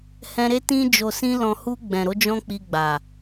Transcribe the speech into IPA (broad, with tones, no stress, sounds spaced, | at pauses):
h ɛ̃˧ ɾ e˦ t ĩ˧ d͡ʒ o˨ s ĩ˧ l ɔ̃˨ h u˧ ɡ͡b ɛ̃˨ ɾ o˨˦ d͡ʒ ɔ̃˦ k͡p i˧ ɡ͡b a˨